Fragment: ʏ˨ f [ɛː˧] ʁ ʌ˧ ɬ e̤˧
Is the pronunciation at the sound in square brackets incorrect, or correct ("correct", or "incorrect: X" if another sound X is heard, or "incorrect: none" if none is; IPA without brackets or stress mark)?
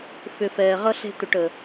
incorrect: ɛː˨